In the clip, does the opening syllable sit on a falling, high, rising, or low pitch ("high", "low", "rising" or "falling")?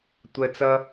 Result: low